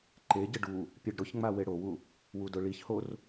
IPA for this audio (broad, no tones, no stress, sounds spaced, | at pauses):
ǃ e ɟ ɪ ɖ u | pʲ ɛ ɖ ɾ ʊ ç ŋ͡m a w e ɽ o w u | w u d ʊ ɭ i ç h o r